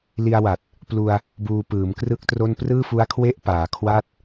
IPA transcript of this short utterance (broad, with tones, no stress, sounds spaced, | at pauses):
l i˧ a̯ w a˨˩ t̚ | p l u˧ a̯ | b uː˧ p ɯː˩˦ m k r ɯ˥˩ k̚ t r o˥˩ n p r ɯː˥˩ f u˦˥ a̯ kʰ w e˥˩ ʔ p aː˩˦ kʰ w a˥˩ t̚